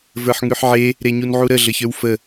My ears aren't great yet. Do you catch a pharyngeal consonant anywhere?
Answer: yes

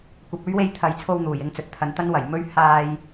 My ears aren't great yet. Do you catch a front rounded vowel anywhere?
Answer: no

